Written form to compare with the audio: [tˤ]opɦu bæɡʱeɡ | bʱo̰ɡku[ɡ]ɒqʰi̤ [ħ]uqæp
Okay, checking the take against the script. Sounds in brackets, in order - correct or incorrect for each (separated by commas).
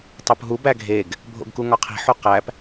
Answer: correct, incorrect, correct